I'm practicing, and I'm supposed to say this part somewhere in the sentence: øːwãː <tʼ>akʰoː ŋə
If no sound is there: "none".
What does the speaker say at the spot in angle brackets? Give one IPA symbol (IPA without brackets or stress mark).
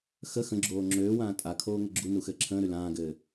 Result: tʼ